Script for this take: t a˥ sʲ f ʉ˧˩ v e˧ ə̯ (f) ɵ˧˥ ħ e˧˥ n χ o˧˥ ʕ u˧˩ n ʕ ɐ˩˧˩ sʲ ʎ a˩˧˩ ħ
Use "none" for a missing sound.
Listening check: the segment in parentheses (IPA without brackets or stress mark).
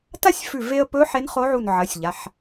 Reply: p